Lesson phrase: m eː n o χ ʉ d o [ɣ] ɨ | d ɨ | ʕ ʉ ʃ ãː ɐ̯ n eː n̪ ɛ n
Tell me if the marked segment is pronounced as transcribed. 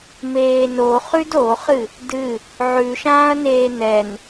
no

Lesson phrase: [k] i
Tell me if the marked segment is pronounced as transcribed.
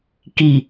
yes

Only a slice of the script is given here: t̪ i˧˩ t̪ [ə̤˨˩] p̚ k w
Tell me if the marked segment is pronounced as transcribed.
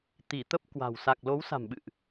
no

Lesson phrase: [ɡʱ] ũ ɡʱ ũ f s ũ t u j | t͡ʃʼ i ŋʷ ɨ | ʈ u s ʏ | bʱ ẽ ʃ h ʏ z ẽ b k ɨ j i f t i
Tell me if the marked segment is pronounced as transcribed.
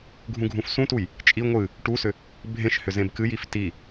yes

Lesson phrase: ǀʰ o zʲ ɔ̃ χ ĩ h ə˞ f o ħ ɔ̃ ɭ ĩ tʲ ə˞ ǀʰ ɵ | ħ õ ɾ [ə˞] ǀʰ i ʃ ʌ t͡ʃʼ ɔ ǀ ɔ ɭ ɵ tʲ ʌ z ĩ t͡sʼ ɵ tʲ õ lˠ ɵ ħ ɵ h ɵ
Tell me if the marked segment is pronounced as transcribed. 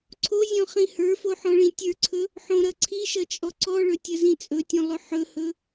no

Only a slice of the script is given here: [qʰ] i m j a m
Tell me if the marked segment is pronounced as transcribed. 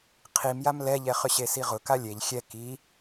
yes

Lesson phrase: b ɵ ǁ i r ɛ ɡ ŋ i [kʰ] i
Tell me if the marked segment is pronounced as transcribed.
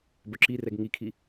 yes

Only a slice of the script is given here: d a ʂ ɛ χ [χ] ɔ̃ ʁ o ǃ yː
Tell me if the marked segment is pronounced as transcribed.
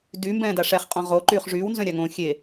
no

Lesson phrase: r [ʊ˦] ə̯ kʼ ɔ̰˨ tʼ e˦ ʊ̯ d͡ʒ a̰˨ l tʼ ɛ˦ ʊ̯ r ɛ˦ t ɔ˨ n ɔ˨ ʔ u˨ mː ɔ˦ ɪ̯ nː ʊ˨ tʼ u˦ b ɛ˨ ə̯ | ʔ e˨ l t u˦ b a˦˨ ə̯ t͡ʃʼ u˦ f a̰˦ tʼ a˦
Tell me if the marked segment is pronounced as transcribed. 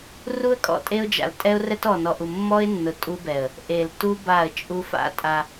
no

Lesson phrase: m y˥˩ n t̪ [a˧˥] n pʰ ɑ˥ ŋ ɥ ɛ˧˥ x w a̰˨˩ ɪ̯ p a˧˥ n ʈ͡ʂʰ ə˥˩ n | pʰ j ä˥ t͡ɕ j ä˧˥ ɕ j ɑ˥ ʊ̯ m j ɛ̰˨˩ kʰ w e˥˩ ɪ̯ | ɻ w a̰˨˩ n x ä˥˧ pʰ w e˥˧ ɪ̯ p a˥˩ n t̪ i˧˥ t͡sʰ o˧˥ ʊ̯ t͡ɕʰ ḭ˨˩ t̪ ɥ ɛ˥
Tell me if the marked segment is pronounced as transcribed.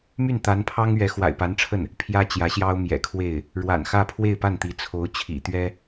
yes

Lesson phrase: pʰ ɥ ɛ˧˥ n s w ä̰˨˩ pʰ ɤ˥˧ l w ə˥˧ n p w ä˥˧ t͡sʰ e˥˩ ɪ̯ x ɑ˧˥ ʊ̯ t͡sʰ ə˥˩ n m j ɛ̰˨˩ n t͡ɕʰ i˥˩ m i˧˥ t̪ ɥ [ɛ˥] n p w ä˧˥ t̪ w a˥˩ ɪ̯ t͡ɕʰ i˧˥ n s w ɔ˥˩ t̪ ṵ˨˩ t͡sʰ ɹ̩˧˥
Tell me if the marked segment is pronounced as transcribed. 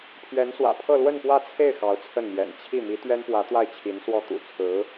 yes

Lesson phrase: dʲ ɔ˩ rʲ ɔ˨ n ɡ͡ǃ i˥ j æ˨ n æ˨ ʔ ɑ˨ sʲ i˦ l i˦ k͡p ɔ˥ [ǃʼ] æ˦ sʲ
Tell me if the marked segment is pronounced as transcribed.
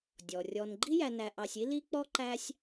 no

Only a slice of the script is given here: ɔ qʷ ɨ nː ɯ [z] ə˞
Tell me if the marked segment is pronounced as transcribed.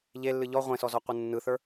no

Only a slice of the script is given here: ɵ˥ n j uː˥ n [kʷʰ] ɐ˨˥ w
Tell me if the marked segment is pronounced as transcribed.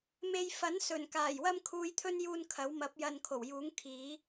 no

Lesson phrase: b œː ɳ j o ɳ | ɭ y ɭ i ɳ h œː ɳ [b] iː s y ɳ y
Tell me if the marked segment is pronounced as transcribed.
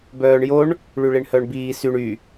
yes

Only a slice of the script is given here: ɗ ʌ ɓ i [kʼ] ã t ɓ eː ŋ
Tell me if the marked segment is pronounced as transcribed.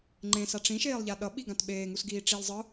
no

